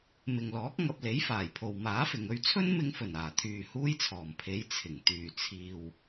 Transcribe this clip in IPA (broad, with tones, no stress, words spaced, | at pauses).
mɪ˨ŋlɔː˨˥k̚ ŋɐ˧p̚le˨˥jfaː˨˩jpʰo˨w maː˨˥fɪ˨ŋɵ˧ɥ t͡sʰɵ˥nmɪ˧ŋfɵ˨˩n aː˨˩t̪ʰyː˨ huː˥jt͡sʰɔː˨˩mpʰe˨˥j t͡sʰɪ˨˩ŋ t̪yː˨˩ t͡sʰiː˨w